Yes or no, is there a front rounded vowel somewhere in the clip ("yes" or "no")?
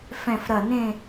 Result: no